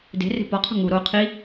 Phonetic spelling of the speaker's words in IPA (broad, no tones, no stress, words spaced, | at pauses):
de̤re̤ pɒqʰṳ ŋu ɾo qʰi